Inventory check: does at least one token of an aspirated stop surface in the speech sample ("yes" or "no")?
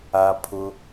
yes